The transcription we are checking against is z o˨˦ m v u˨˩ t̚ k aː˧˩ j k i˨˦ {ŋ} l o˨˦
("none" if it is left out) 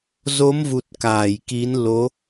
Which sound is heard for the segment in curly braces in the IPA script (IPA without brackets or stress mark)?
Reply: n